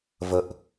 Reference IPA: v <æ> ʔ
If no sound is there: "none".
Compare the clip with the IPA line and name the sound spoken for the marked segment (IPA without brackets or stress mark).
ə